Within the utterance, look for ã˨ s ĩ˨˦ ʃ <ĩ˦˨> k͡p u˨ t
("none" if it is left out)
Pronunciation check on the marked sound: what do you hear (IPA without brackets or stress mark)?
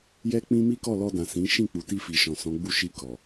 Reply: ĩ˦˨